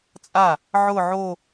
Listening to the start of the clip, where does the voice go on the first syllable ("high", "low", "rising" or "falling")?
falling